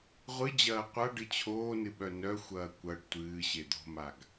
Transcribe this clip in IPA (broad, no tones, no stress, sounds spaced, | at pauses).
ʁʷ ɨ d͡ʑ ɐː qʷ a ɖ ɨ t͡ɕʰ oː n ɨ ɓ œ n œ xʷ ɐː kʷ ɐ ɖ tʷ ɨː ɕ e d̪ o̤ m a ɡ